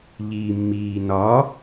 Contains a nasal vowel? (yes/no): no